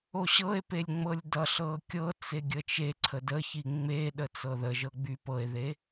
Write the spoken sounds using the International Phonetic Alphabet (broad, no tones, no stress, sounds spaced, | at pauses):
o ɕ ɤ e̯ p e lʲ ŋ͡m ɤ lʲ d ʌ ɬ ɤ kʲ ɤ t͡s e ɡʲ ə t͡ʃ e ǀʰ ə d ə ç i ŋ͡m e ɗ ə t͡s ɤ ð ə ʒ ɤ ɡ͡b y p ɤ e̯ ð e